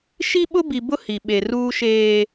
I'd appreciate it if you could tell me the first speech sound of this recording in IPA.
ʃ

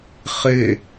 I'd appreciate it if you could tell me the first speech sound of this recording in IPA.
χ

